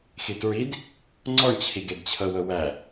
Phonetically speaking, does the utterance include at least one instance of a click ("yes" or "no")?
yes